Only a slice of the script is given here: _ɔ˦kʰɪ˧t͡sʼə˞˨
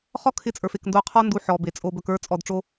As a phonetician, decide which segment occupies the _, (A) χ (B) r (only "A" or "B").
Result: A